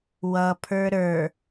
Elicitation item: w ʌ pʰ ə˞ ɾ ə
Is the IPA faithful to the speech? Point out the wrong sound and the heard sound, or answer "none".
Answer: ə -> ə˞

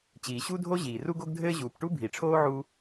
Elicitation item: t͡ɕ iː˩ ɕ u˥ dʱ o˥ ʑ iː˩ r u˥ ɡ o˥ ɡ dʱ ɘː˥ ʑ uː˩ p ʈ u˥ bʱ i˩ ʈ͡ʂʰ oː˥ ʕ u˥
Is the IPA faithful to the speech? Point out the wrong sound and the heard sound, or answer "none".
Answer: none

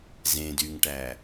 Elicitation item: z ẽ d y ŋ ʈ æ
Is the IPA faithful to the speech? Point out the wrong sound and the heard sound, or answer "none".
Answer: none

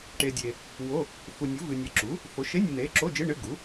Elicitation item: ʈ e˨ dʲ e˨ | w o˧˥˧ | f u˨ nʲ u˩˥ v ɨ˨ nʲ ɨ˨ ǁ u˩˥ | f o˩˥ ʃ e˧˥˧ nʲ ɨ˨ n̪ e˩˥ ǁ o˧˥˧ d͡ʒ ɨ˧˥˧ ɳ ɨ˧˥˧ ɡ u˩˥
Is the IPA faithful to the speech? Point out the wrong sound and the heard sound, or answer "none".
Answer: none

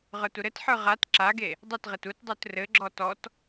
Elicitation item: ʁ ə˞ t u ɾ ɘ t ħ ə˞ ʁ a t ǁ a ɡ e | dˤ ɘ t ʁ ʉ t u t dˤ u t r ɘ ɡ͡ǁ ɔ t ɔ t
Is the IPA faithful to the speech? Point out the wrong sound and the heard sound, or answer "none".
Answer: ʉ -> ɘ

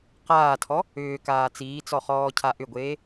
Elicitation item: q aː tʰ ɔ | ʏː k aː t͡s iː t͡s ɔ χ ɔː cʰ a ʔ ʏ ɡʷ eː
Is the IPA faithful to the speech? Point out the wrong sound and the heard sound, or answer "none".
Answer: none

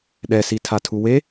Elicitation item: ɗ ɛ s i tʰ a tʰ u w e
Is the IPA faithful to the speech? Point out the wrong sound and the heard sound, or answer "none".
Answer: none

